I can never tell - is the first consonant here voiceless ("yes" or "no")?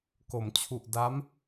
yes